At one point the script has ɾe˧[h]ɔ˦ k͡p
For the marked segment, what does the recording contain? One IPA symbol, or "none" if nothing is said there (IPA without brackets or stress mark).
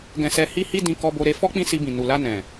f